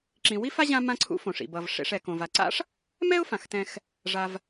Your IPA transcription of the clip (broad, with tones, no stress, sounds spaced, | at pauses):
ǁ ĩ˨ w i˥ f a˥ ʑ ã˦ m ã˦ ǀʰ ṵ˦ f õ˩ ʂ ḭ˩ b ʌ˩ v ʂ ḛ˨ ʂ ɛ˩ k õ˩ v a˩ ǀ a̰˥ ʂ | m ɛ˥ ʊ̯ f ã˩ x t ɛ̃˨ x | ʐ a˨ v